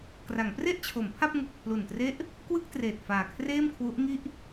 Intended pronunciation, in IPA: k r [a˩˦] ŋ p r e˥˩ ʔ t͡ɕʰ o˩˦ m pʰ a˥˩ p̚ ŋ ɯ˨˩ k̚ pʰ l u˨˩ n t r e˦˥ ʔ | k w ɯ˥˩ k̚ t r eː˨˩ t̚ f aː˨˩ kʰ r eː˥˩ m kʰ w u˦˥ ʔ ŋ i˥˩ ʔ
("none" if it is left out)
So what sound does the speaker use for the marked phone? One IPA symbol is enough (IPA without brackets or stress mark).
a˩˦